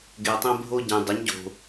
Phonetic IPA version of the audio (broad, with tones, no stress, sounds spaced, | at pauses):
ɡ e˧ tˤ ẽ˥ bʱ o˥ ɟ ẽ˧ dˤ ɪ˧˥ ɲ ɟ o̤˧